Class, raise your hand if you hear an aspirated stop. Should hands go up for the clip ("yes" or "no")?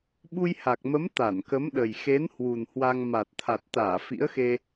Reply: yes